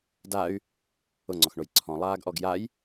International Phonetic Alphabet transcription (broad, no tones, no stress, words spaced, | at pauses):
day̯ | ʊŋ͡ǀɔxɳoj ǀʰɔ̃lˠaːɡʔɔɡ jaj